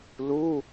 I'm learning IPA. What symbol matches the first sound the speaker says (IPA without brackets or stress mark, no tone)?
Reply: l